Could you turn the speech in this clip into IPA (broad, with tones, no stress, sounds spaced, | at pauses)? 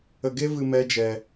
ə˧ ɡ e˦ v ɨ˧ m ɛ˦ d͡ʒ ɛ˧